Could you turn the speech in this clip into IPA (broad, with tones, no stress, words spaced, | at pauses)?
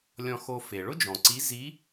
lʲɔ̃˧xo˧ fe˩ɭʊ˥d͡ʒɔ̃˩ǀi˧˥ zi˧˥